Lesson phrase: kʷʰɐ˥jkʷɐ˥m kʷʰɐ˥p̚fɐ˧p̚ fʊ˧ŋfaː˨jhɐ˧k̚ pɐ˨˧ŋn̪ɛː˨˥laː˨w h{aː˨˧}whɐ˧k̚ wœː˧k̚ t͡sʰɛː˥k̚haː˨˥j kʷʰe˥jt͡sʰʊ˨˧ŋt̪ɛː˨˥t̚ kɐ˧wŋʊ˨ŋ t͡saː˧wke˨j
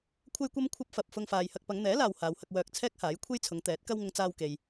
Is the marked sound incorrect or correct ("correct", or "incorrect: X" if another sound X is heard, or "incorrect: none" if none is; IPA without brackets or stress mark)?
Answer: correct